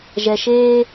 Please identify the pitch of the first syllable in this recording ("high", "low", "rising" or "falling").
low